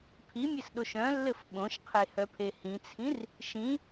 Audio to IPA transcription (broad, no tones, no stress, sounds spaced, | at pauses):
pʰ i mʲ ɘ s ɗ o ʃ œ̃ lː ɘ f ɓ õ ʃ qʰ e h œ pʰ e h ĩ t͡sʰ ĩ r | ʃ ĩ